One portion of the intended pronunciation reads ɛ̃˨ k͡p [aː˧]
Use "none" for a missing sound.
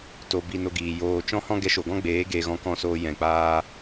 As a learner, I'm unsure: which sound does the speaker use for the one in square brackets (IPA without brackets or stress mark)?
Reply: aː˧